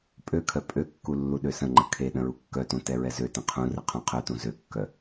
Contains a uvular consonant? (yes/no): yes